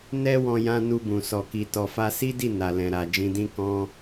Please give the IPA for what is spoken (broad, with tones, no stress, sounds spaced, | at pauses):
n ɛ˦ w ɔ̃˧ j ã˧ n u˧ b ũ˨ s ɔ˨ k i˨ t ɔ˨ f a˧ s i˦ d i˦˨ n a˨ l ɛ̃˨ ɾ a˨ d͡ʒ ĩ˧ d ĩ˦ k ɔ̃˦